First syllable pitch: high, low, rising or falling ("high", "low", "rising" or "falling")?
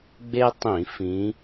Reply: high